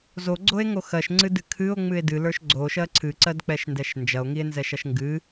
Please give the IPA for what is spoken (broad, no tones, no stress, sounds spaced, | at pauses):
z o ɡ͡ǀ o e̯ ŋ o x ɜ ʃ ŋ͡ǀ ɨ d ɨ kʰ ɨ o̯ ŋ͡m ɨ e̯ d ɨ l ə˞ ʃ ɡ͡ǀ o ʃ ɜ ǀʰ ɨ ǀ ɜ d k͡p ɛ ʃ n d ɛ ʃ n d͡ʒ ɐ o̯ ŋ i e̯ n z ɛ ʃ ɐ ʃ ŋ ɡ ɨ